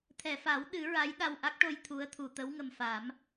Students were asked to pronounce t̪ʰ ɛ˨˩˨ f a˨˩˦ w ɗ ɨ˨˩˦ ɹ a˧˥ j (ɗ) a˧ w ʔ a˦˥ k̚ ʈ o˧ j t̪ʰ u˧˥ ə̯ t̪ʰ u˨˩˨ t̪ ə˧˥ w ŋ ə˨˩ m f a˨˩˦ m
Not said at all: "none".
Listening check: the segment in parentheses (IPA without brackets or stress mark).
ɗ